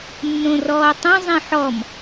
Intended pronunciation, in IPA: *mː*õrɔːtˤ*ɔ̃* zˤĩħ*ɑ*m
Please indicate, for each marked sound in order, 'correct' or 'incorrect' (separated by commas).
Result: incorrect, incorrect, incorrect